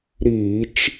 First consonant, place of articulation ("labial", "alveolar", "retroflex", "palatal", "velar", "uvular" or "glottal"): alveolar